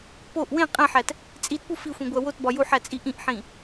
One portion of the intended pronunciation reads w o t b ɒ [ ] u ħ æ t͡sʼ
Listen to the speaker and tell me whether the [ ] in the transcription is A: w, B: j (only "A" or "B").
B